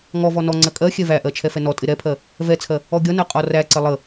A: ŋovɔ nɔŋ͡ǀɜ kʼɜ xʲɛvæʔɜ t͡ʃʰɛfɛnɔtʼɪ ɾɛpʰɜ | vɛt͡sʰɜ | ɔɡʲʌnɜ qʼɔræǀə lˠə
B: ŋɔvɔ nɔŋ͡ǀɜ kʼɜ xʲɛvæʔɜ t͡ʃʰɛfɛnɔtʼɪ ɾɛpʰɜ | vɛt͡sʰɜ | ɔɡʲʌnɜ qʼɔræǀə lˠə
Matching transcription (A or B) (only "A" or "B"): B